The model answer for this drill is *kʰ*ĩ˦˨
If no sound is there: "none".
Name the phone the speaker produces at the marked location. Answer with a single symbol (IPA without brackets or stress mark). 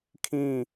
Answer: kʰ